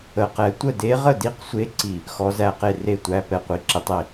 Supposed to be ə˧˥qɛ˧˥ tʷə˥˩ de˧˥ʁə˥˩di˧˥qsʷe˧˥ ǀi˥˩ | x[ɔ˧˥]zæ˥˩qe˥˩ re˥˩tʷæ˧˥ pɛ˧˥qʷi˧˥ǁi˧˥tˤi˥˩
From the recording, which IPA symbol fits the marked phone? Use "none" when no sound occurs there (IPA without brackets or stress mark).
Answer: ɔ˧˥